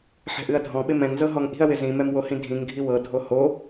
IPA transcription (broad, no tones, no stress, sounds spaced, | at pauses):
ħ ɛ̤ ʔ ɨ ɐ̯ dʱ ɔ̃ ɓ ɪ m ɛ̃ ŋ z ɤ ɦ ɔ ŋ ʔ i̤ ɐ̯ w ɪ z ĩ m ɛ m w o h ĩ dʱ ĩ ŋ ɡʱ i w ɤ dʱ o h o